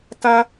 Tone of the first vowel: high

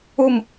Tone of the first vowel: falling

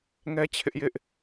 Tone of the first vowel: high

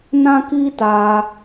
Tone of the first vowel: high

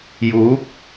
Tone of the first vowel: rising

